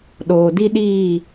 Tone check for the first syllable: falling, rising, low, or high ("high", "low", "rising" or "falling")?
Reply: low